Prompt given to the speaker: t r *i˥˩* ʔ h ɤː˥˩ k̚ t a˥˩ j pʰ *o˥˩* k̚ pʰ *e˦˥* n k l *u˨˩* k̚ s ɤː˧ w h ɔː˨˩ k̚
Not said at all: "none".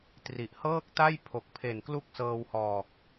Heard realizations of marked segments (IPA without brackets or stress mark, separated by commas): i˨˩, o˨˩, e˨˩, u˥˩